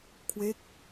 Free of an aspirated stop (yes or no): no